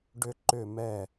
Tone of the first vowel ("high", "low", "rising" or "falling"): high